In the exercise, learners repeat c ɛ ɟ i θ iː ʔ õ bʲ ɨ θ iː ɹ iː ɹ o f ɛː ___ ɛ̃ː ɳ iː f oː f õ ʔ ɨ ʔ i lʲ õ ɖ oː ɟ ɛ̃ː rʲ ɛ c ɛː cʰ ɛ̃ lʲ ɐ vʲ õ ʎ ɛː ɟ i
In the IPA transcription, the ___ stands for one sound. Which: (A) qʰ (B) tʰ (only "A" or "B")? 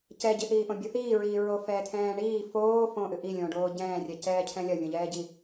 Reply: B